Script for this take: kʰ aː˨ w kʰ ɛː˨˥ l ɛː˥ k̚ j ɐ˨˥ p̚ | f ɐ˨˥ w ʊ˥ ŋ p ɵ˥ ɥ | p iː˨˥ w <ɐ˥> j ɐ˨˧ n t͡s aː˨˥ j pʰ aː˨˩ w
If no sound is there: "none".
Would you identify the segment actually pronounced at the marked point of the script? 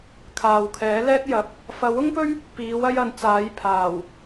ɐ˥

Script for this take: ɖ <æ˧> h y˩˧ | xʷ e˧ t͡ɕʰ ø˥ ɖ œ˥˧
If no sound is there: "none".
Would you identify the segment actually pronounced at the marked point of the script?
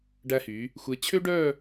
æ˧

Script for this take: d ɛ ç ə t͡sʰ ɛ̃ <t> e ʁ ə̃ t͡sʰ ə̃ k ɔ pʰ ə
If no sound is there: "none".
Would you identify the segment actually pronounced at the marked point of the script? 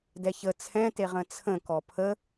t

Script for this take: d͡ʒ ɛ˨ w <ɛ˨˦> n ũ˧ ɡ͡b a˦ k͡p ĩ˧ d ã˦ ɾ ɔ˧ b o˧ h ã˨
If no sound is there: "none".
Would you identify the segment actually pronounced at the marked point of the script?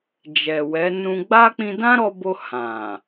ɛ˨˦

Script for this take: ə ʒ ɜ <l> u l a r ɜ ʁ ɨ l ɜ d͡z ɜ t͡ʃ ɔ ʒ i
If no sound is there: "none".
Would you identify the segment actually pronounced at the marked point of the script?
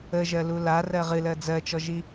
l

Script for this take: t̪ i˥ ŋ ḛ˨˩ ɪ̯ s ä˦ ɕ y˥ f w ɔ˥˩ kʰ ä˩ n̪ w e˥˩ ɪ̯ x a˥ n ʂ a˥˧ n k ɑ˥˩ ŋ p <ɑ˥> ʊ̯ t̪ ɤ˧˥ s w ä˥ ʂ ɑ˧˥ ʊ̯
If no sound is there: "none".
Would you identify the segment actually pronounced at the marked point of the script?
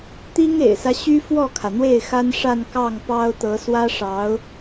ɑ˥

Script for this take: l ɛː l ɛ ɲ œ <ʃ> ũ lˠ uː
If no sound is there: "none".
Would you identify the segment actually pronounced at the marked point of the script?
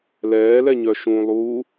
ʃ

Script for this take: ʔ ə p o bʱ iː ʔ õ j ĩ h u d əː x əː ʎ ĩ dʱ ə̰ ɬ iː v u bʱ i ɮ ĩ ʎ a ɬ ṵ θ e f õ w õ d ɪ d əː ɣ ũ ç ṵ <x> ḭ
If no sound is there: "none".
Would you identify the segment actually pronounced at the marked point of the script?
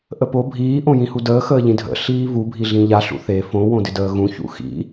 x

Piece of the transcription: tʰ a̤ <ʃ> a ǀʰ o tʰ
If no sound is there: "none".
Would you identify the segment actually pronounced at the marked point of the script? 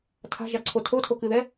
ʒ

